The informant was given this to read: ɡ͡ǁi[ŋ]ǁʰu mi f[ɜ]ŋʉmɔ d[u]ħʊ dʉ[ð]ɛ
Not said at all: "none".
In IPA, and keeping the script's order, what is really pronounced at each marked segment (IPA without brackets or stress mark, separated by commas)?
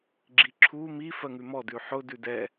none, ɜ, ʉ, d